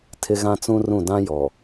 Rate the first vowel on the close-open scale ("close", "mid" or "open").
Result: close